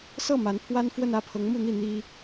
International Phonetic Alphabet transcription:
s ɤ˥˩ m a˧˥ n pʰ w a˥ n f w ə˥˧ n ä˥˩ pʰ ɤ˧˥ ŋ m u˥˧ n̪ i˥˩ n̪ i˥

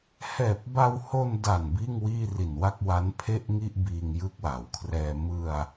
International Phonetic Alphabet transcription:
h ɛː˨˩ p̚ b a˧ w h o˧ n d a˨˩ n b iː˥˩ ŋ w iː˥˩ r i˨˩ n w a˥˩ k̚ w a˦˥ n pʰ e˥˩ ʔ ŋ i˥˩ ʔ b iː˧ ŋ j ɯ˦˥ k̚ w a˩˦ w kʰ r ɛː˧ m ɯ˧ a̯

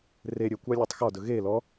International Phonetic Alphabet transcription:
r e ɾʲ ɵ kʷ ɑ lʲ ɒ tˤ x ɒ d ɵ ɣ e l ɔ

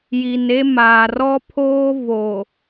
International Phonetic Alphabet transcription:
j i˨ n e˦ m aː˨ r ɔ˦ pʰ oː˦ v o˨

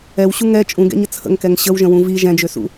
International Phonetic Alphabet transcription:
ɛ w ɕ u ŋ ɛ t͡ʃʼ ũ ɡ ɛ̰ ɲ ə t͡sʰ ə̰ ŋ k ɛ ŋ ɕ ə w ʒ ə̃ w ũ v i ʒ ɛ̃ d͡ʒ ø s ṵ

